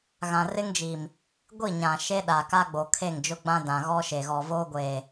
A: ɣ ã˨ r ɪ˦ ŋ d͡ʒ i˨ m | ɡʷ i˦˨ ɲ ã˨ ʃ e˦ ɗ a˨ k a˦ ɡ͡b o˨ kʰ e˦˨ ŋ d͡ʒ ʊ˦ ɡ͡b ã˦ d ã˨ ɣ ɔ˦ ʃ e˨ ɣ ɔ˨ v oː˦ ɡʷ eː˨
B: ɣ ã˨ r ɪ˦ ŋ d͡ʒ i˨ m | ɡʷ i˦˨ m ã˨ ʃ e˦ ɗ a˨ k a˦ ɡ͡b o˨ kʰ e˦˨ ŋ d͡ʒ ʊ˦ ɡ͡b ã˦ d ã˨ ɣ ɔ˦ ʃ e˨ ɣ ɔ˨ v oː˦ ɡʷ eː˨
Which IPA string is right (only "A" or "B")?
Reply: A